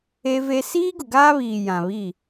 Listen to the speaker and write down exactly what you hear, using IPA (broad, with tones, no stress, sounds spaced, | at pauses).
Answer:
e˦ v e˦ s iː˦ ɡ ʊ˨ ɡ aː˦ β iː˨ j ã˨ β i˦˨